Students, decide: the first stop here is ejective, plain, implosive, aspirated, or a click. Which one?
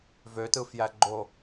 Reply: plain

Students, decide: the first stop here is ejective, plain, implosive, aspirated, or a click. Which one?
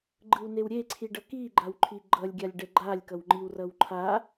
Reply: click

